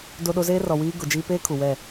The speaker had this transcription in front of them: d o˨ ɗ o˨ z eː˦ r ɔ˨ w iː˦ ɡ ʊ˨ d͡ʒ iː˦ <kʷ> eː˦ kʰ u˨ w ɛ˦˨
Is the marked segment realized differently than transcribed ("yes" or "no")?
yes